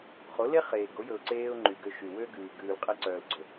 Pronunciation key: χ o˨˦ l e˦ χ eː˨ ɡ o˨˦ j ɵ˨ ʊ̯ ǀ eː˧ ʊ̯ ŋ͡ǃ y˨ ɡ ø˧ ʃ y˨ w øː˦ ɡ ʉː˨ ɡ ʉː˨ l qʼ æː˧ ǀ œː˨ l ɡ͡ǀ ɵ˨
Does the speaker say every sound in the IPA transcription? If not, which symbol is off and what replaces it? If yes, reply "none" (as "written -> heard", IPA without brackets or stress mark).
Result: æː˧ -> æ˧